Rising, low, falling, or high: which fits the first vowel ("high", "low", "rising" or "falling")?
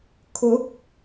rising